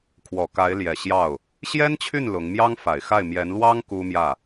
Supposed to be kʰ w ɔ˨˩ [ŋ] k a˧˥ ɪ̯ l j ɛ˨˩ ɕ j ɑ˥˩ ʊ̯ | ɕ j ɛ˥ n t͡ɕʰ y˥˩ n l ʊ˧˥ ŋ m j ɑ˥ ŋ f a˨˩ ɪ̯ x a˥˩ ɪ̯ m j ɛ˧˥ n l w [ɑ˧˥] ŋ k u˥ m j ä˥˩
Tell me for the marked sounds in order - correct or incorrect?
incorrect: none, incorrect: ɑ˥

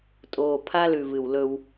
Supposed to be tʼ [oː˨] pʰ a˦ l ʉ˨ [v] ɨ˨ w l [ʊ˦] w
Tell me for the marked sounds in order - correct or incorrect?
correct, correct, incorrect: ɵ˦

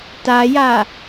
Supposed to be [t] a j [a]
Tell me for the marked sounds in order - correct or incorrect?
correct, correct

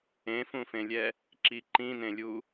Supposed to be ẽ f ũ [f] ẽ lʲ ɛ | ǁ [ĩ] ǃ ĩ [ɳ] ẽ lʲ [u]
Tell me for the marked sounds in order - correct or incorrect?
correct, incorrect: i, incorrect: n, correct

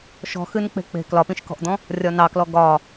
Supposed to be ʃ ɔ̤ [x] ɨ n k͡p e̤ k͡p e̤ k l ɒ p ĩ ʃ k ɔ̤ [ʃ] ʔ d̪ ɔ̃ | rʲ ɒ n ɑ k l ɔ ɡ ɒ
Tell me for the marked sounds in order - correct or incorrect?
correct, incorrect: none

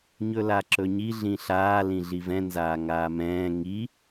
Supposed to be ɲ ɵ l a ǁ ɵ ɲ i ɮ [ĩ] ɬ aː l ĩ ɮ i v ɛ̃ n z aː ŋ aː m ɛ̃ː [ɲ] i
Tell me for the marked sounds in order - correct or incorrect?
correct, incorrect: ŋ

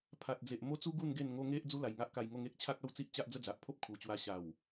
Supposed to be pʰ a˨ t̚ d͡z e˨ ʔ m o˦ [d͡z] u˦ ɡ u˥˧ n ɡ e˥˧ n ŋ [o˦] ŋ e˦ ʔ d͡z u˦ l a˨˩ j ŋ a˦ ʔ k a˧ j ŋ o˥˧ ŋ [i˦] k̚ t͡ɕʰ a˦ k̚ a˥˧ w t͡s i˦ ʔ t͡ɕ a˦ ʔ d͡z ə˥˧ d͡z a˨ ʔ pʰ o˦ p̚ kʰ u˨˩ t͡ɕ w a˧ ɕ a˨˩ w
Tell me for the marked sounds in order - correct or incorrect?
incorrect: t͡s, correct, incorrect: e˦

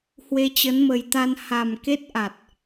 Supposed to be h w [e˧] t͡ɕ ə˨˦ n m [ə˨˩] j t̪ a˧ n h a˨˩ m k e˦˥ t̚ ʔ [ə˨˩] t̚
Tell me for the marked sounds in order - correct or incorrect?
correct, correct, incorrect: a˨˩

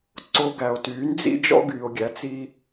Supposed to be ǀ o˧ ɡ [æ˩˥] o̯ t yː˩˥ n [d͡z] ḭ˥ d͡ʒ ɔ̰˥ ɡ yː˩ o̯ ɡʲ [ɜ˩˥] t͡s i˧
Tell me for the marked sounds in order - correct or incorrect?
incorrect: æ˩, correct, incorrect: æ˩˥

